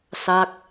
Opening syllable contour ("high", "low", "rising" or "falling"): falling